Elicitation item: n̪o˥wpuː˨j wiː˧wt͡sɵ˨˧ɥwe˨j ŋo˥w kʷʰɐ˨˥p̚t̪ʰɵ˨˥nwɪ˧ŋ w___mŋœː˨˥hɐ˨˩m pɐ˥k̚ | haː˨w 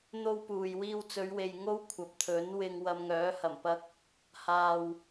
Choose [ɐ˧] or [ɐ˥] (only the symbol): ɐ˧